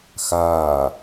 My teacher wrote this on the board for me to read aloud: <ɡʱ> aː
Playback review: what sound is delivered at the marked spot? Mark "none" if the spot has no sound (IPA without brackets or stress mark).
x